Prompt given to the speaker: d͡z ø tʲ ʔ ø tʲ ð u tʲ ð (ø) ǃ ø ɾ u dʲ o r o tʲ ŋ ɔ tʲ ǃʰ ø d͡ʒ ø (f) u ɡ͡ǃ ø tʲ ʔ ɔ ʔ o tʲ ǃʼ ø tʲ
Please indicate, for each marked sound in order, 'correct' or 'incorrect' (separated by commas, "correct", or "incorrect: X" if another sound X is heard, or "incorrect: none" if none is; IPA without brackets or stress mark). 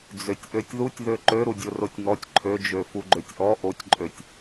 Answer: correct, correct